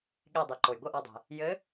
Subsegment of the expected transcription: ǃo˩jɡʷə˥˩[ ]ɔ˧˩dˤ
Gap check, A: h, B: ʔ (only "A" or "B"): B